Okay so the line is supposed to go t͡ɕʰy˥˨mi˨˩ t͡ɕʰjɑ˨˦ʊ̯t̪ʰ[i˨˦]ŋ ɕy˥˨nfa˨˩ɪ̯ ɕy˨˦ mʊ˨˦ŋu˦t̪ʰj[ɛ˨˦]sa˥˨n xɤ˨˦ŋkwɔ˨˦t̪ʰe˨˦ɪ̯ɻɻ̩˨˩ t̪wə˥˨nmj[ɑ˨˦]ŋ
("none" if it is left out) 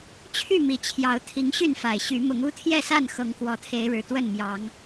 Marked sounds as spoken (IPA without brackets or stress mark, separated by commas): i˨˦, ɛ˥˨, ɑ˨˦